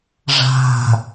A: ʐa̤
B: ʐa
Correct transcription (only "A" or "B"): A